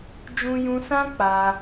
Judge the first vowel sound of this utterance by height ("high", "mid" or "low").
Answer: high